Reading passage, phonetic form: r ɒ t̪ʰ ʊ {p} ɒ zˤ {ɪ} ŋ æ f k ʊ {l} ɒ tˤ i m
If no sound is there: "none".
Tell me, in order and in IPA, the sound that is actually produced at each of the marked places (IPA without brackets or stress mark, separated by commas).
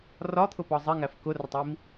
p, ɪ, r